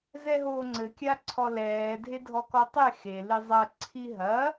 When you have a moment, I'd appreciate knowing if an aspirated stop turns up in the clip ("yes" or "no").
yes